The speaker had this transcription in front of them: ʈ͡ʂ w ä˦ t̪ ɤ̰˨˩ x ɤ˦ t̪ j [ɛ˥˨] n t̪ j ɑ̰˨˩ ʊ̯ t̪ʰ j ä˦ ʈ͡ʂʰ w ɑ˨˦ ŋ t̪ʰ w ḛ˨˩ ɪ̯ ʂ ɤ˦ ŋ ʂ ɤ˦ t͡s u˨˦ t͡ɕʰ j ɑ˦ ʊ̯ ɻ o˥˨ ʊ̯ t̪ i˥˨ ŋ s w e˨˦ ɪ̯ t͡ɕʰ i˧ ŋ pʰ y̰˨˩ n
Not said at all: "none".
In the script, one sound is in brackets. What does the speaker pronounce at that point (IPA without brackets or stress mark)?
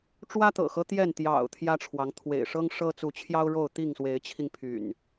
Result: ɛ˥˨